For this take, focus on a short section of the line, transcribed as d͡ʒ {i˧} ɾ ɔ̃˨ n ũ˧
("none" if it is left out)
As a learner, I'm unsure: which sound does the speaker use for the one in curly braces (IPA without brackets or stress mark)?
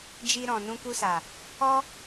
i˧